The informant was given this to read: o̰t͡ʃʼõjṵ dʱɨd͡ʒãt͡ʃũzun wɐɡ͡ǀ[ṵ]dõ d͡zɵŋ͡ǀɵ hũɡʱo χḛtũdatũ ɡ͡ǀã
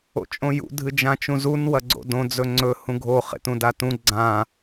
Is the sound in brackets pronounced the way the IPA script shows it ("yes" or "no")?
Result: no